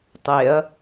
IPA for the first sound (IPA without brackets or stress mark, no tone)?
tˤ